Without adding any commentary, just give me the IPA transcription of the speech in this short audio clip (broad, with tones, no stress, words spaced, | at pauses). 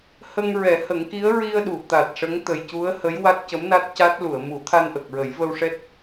hə˧ŋɹɛ˨˩˦hə˨˩˦ŋki˧˥ə̯ ɹi˧ə̯ɗu˨˩˨ t̪a˨˩t̚ʂə˧˥ŋ t̪ə˨˩jcu˧˥ə̯hə˧˥j wa˦˥t̚cə˧˥mna˦˥t̚ ca˦˥t̚ lu˨˩˨ə̯mu˨˩˦t̪ʰa˧n ʔə˨˩k̚ɹə˨˩˦jvə˧wʂɛ˦˥t̚